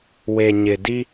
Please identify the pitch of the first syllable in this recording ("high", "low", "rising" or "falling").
low